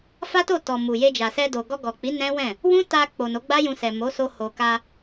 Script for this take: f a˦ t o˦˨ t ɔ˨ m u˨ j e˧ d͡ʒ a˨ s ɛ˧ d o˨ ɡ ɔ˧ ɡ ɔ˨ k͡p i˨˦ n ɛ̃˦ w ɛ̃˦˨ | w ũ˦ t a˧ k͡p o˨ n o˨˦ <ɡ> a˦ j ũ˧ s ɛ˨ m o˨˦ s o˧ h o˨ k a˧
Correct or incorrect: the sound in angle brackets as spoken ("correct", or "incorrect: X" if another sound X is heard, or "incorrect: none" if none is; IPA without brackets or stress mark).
incorrect: ɡ͡b